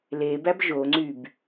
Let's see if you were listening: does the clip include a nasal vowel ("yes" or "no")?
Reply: no